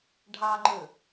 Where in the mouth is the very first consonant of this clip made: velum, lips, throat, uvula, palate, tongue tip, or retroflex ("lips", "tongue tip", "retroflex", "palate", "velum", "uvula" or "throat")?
retroflex